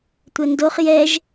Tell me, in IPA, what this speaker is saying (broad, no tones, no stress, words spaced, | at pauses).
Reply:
tʷɛndoχ jɛʒ